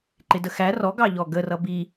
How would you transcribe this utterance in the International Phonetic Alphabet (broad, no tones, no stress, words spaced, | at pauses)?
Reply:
ǃɪdəxæ rɔɡɑʎɔ ɡərʌ bi